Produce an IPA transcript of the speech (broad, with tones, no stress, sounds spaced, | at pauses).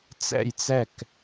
t͡s ɛ̰˥˩ j t͡s ɛ˥˩ k